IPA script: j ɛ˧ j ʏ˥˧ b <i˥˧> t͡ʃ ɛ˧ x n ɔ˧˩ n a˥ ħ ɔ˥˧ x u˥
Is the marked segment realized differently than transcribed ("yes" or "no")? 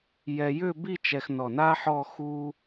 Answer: no